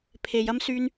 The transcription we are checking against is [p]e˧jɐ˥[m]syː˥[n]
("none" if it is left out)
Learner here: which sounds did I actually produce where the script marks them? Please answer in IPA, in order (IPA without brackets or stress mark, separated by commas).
pʰ, m, n